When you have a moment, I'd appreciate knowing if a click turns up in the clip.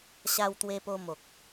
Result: no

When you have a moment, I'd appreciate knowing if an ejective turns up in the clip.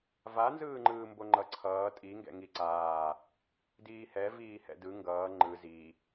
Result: yes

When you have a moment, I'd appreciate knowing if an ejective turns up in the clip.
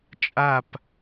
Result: yes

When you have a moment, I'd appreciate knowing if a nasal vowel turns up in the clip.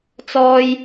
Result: no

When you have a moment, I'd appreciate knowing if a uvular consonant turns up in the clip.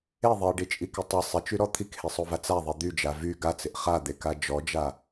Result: yes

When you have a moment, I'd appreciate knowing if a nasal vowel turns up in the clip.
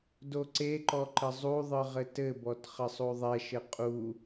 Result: no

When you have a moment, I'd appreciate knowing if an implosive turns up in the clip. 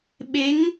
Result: yes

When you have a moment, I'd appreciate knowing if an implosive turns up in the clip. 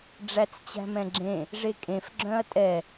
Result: no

